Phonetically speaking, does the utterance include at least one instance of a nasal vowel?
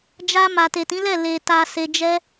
yes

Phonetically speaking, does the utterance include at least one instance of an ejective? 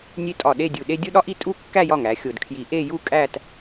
yes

